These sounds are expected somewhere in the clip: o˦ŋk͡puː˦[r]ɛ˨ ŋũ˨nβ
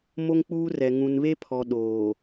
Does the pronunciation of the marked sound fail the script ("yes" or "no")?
no